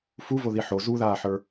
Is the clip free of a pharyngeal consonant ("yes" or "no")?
no